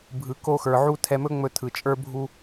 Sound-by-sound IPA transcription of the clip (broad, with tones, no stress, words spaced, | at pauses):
bʱɯ˨ ko˧xə˞˨ ʕu˧ tʰɛ˧mɵ˦ ŋ͡mɵ˧ tʰɯ˨ t͡ʃʼə˞˧bʱu˧